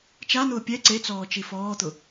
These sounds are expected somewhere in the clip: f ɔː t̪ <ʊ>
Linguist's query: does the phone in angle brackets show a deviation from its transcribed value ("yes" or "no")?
no